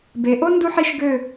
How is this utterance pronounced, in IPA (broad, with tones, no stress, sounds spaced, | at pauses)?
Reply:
b e˩˧ ʔ o˥ n d u˥ ħ i˥˧ ʃ ɡ ø˥˧